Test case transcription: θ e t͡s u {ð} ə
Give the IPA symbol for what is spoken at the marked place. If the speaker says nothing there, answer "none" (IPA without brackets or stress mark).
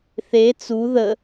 ð